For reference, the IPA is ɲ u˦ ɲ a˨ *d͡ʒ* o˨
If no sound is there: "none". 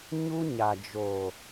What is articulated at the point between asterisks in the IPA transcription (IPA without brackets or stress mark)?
d͡ʒ